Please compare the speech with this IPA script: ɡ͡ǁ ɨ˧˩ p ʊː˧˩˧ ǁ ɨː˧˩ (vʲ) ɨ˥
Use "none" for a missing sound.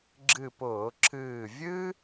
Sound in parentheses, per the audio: vʲ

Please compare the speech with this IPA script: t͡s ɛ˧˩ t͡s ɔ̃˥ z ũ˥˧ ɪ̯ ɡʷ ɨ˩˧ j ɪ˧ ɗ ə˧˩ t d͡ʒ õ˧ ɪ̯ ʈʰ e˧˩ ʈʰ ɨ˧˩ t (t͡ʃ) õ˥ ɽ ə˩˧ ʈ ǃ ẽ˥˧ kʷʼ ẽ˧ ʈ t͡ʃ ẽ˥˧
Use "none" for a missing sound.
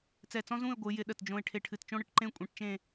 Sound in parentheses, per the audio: t͡ʃ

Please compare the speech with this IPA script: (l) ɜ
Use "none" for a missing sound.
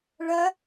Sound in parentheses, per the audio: ɭ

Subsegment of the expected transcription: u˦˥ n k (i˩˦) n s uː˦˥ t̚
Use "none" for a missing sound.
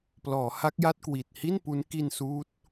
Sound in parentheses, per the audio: i˧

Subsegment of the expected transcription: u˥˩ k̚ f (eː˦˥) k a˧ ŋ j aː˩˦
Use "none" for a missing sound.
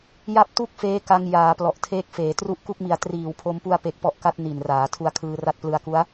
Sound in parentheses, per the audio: eː˦˥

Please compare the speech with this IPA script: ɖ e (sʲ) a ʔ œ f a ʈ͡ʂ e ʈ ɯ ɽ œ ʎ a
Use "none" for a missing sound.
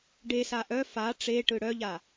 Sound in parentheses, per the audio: s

